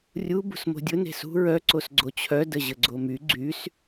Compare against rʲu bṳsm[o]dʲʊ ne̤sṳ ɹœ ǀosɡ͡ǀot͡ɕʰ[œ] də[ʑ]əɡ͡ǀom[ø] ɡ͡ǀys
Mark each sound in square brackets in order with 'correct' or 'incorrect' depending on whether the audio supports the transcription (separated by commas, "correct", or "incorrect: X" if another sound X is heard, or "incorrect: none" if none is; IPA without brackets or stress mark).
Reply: incorrect: o̤, correct, correct, incorrect: y